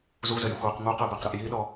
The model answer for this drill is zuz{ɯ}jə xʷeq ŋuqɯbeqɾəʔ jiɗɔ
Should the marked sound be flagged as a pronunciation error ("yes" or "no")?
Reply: yes